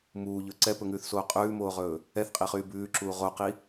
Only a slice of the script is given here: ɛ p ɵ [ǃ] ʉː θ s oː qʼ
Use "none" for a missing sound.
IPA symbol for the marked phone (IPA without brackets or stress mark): ŋ